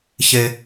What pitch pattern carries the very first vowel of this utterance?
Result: high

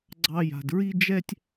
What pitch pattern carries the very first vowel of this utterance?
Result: high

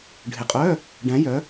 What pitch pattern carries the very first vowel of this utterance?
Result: low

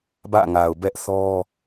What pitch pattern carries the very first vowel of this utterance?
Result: falling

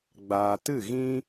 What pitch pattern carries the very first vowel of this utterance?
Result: low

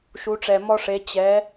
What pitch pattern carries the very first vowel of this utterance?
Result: rising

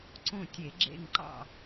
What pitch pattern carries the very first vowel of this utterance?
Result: falling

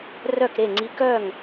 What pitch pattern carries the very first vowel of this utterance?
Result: falling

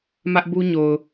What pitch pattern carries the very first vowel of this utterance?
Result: high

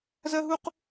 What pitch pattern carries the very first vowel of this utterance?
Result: high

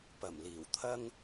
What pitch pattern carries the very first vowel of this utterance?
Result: low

